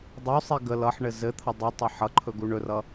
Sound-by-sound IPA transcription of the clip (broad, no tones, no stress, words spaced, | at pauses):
dˤusˤi ɡə lʌħɳɘ zɘt̪ʰʌ dˤitˤə ħʌǃʰɵɡu ɳɵrʌ